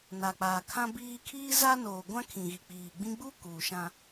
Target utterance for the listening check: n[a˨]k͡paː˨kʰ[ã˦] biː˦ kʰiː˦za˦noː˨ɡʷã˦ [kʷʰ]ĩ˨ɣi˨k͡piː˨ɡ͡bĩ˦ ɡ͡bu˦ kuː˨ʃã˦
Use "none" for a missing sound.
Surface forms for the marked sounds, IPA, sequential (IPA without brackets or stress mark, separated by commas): a˨, ã˦, kʰ